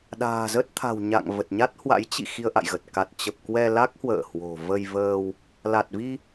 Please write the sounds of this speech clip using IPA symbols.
ɗa̤ː˨˩zə˦˥t̚ t̪ʰa̤˨˩wɲa̰˧˨ŋ və˨˩t̚ɲa˦˥t̚hwa̰˧˥j t͡ɕḭ˧˨ xi˧ə̯ʔa̰˧˨jɣə˨˩t̚ ka˨˩t̚ t͡ɕə˨˩p̚ kwɛ˧la˦˥k̚hwə̰ː˧˨ hwo̤˨˩ və˧jvəː˧w | la˨˩t̚vi˧

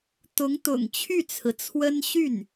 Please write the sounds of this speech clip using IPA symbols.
t̪ʊ˧˥ŋt̪ʊ̰˨˩ŋ t͡ɕʰy˥˩t͡sʰɹ̩˩t͡sʰwə˥n ɕy˥˩n

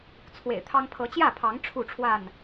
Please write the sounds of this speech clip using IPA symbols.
t͡sʰwḛ˨˩ɪ̯t̪ʰɑ˦ŋ pʰɤ˨˦t͡ɕjä˥˨pʰɑ˨˦ŋ ʈ͡ʂʰu˥˨ʈ͡ʂʰwa˥˨n

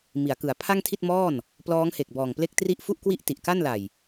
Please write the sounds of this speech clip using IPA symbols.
mi˩˦a̯kɯ˩˦a̯ pʰa˥˩ŋtʰi˥˩t̚mɔː˥˩n | plɔː˦˥ŋhe˨˩k̚ bɔː˨˩ŋple˥˩k̚tri˥˩ʔ fu˥˩ʔkwi˥˩ʔ ti˨˩ʔka˥˩nla˨˩j

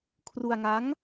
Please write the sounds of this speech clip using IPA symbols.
kʰru˧a̯ŋa˦˥ŋ

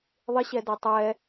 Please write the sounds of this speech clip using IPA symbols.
ðˤɪɕɛdɛ tˤɛ

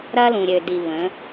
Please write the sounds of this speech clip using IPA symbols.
ɾɐ˦lũ˨ɾʲø˨di˨ βə̃˨˦

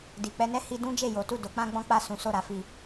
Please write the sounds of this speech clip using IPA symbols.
di˨ k͡pɛ˧nɛ˦ hi˦ dũ˦ d͡ʒe˦˨jo˨˦tu˦˨ do˨˦k͡pã˦ɡ͡bɔ̃˦k͡pa˦˨ sũ˨˦so˦˨ɾa˧fi˧

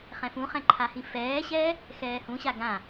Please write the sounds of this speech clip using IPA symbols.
χɛ̃fũχɛ̃ ǃʰahĩfɛːɕɛː | xɛːhũɕa ɡã

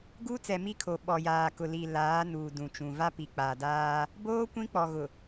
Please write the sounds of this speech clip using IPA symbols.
ɡuː˦t͡sɛ˨ mi˦kʰo˨ ɓɔ˨jaː˨ kʊ˨li˨ laː˨˦ nuː˨dũ˨t͡ʃũ˨ va˦pi˨k͡pa˨daː˦ | boː˦ kʷĩ˦k͡pɔ˨ɣʊ˨

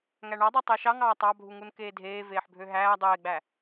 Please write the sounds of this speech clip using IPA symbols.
ŋæɳɑdˤo tˤeʃɑŋɑː tˤɑbʱuŋun keːdʱeː veːħbʱøɦæː dˤeːɡ͡bæ

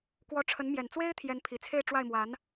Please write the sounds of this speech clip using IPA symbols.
kwɔ˧˥ʈ͡ʂʰə˧˥n mjɛ˨˩n t͡swe˥ɪ̯ t̪ʰjɛ˧˥npʰi˨˩t͡sʰe˥˧ɪ̯ʈ͡ʂwa˥˩ɪ̯ mwa˧˥n

